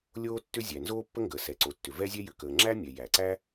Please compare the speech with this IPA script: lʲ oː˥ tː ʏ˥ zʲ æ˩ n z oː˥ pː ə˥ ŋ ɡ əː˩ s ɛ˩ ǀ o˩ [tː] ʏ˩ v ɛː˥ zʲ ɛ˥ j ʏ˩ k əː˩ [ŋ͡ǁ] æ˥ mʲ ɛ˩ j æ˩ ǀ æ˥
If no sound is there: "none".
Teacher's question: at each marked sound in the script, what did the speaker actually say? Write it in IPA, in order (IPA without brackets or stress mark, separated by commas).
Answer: tː, ŋ͡ǁ